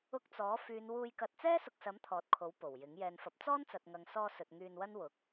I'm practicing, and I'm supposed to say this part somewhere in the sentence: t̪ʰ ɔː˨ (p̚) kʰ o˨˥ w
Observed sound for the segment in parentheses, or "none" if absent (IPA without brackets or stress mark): t̚